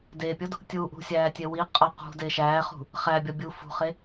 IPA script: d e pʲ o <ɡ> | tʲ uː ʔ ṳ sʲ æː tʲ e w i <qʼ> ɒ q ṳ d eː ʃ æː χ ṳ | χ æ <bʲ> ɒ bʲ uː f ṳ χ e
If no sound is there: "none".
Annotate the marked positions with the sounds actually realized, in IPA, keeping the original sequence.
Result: d, qʼ, bʲ

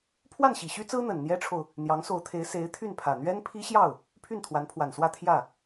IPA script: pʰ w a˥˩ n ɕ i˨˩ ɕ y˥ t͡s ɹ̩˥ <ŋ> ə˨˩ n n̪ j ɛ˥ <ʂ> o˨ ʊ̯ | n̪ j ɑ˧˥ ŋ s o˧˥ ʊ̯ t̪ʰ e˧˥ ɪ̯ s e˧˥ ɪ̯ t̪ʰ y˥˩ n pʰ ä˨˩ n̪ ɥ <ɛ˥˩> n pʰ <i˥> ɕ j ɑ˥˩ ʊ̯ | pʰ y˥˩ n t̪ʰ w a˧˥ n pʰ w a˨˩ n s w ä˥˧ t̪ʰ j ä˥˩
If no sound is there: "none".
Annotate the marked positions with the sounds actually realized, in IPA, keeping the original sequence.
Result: n̪, ʈ͡ʂʰ, ɛ˥, i˥

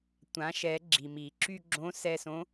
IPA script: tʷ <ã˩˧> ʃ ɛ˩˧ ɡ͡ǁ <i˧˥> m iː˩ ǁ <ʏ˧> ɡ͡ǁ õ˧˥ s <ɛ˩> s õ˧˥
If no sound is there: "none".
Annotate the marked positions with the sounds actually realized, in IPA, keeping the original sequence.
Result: ã˩˧, i˩, y˧, ɛ˧

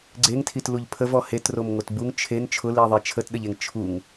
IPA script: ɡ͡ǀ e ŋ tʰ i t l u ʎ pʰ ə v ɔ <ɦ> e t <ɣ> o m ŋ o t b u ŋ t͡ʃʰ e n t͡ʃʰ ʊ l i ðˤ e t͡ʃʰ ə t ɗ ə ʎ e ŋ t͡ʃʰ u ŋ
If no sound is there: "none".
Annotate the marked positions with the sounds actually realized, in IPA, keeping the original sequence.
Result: h, r

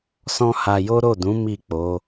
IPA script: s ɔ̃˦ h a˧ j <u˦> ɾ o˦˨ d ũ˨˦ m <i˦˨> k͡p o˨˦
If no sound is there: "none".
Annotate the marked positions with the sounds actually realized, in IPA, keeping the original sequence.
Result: o˦, i˦˨

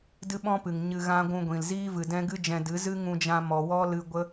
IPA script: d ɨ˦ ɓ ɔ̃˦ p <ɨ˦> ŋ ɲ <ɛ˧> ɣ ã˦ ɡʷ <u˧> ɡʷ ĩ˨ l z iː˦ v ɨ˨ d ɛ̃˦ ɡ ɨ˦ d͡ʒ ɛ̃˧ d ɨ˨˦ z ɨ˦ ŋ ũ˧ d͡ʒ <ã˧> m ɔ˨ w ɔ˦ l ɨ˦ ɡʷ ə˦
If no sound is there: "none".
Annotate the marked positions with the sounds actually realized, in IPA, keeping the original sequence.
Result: ɨ˨, ɨ˧, ũ˧, ã˧

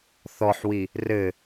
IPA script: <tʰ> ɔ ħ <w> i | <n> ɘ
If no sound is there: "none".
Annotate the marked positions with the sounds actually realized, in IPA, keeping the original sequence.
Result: θ, w, r

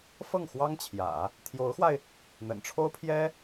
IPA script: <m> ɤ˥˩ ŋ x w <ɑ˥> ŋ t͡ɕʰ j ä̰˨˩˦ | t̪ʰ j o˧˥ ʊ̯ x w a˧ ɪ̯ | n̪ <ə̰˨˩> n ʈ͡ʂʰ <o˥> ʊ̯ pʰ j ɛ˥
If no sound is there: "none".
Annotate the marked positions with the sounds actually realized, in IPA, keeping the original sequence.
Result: f, ɑ˥, ə̰˨˩, o˥

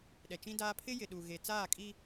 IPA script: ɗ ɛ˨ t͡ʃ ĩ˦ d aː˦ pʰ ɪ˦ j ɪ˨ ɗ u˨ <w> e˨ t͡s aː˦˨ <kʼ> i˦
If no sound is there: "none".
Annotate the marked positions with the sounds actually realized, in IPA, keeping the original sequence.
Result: ɣ, kʼ

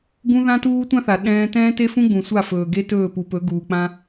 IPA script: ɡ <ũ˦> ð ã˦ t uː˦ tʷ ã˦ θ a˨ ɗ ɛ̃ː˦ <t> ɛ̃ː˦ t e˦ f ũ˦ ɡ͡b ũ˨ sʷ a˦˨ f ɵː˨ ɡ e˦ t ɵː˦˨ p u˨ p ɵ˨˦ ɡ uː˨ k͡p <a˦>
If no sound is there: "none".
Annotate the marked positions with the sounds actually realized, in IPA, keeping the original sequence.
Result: ũ˦, t, ã˦

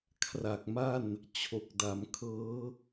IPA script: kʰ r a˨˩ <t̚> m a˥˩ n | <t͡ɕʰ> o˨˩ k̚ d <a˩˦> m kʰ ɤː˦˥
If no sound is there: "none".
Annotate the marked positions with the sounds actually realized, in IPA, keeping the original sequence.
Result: k̚, t͡ɕʰ, a˩˦

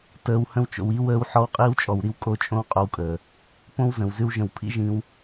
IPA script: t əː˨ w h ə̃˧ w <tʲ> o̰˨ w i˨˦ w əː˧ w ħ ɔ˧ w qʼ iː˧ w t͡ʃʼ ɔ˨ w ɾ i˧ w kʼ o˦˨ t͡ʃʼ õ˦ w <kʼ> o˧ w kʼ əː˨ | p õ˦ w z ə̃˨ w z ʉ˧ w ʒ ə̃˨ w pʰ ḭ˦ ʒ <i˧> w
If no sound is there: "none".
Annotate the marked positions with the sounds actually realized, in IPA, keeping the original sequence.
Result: t͡ʃ, qʼ, ĩ˧

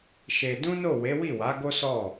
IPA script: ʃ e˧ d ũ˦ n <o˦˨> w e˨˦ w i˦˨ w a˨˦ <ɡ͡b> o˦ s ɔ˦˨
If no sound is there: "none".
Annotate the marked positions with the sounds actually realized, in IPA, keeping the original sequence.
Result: o˦˨, ɡ

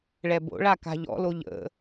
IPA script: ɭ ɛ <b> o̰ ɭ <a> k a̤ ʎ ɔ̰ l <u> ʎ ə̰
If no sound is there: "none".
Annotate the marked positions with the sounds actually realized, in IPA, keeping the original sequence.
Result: b, a, o

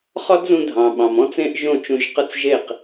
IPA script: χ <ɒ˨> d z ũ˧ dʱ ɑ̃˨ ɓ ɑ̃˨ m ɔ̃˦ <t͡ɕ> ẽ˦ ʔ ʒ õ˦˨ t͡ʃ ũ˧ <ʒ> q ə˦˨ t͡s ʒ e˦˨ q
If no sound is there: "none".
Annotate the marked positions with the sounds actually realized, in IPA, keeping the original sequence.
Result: ɒ˦, t͡s, ʒ

